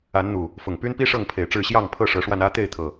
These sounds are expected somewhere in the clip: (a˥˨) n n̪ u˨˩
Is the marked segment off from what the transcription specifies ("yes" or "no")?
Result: yes